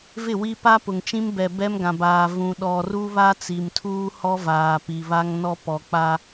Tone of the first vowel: falling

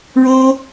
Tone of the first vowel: high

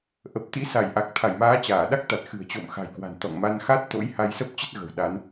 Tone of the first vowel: low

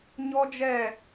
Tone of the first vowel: high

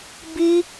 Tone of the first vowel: high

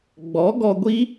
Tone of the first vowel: rising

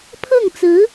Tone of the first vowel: falling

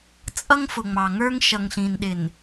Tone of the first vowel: high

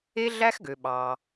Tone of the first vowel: high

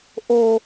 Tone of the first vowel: high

